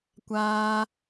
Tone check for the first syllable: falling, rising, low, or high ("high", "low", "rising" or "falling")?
high